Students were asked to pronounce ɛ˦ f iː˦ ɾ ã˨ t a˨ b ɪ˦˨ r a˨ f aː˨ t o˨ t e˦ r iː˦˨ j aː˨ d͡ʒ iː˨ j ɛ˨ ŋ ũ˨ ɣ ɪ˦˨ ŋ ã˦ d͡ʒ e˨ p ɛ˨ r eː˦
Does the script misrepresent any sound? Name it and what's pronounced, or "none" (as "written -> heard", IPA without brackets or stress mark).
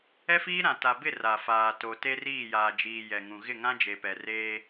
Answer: none